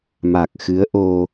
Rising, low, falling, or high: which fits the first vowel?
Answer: low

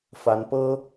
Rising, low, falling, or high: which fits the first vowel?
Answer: rising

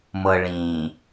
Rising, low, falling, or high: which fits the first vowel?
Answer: low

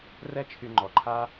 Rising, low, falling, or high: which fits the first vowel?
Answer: high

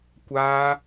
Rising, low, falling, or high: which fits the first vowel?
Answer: high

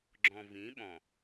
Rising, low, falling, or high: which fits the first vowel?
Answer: low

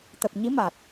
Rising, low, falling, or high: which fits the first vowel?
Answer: low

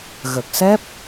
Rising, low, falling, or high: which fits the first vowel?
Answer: low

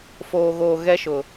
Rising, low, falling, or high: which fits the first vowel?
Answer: low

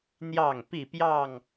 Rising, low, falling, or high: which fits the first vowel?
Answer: falling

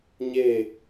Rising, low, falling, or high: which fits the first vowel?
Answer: falling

